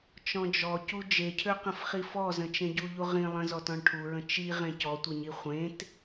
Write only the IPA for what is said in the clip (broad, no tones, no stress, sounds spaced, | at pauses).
t͡ʃ ɔ̃ d͡ʒ ɔ c u d͡ʒ e cʰ ø q ə̃ f χ i f ɔ z ə̃ t͡ʃ ẽ ɟ u ʎ u ʁ ĩ lˠ ə̃ z ɔ t ɔ̃ ɭ ʈʰ u ɹ ə̃ t͡ʃ i ʁ ẽ c ɔ tʷ e ɲ i χʷ ẽ t